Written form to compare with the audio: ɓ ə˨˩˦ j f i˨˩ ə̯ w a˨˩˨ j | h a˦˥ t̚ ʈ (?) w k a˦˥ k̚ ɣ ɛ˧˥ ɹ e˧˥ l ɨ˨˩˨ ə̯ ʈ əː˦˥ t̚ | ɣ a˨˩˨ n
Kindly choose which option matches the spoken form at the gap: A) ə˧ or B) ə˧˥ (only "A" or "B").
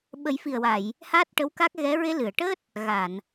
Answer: B